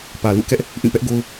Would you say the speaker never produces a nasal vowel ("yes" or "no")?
no